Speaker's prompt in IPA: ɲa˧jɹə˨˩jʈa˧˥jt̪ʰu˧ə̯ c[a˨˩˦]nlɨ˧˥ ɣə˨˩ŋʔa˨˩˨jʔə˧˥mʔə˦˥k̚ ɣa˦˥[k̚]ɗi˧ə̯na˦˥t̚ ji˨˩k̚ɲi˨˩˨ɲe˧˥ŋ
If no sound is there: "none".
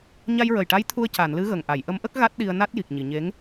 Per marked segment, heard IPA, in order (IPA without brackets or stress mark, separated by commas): a˨˩˨, t̚